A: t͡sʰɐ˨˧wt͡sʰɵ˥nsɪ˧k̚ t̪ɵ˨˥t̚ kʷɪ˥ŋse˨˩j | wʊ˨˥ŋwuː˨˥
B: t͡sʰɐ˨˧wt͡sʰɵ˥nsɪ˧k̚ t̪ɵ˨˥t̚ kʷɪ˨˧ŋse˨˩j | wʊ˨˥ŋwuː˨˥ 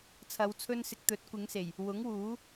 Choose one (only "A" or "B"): B